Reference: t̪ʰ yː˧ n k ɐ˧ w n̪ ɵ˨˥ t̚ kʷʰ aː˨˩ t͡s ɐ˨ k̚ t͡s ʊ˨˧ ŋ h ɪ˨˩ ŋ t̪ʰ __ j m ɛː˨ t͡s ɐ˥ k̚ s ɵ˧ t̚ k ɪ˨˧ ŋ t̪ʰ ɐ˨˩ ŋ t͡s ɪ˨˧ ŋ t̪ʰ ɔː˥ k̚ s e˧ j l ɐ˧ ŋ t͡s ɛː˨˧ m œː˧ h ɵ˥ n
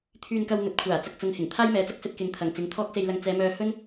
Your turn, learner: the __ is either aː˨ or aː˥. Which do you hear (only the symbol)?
aː˥